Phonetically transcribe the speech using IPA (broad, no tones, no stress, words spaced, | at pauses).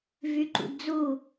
vyǃṵdd͡zu